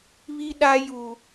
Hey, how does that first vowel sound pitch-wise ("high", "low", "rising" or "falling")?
high